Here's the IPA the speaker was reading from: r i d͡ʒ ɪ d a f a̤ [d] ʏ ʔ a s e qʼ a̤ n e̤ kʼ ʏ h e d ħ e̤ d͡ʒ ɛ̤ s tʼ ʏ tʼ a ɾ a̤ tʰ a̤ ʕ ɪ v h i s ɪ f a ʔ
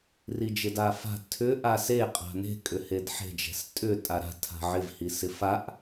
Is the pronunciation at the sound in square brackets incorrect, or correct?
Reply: incorrect